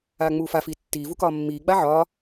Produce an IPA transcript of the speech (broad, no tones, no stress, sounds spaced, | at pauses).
aː ŋ͡m uː f a f iː tː iː v u k ɒː mː iː ɡ͡b a ʕ ɒː